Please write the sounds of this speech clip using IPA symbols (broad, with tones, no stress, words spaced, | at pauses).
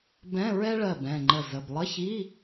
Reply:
bɛ̃˧˥˧ɹɛ˥ɭɜ˧˩bɛ̃˧˩ ŋ͡ǃə˧˩zə˩˧˩b lˠə˧˥˧çi˧˥˧